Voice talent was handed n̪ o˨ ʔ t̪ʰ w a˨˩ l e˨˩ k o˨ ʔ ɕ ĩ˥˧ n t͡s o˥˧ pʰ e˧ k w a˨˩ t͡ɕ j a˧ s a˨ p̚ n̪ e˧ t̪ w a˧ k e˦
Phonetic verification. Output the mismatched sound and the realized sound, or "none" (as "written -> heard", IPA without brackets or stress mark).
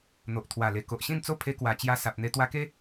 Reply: none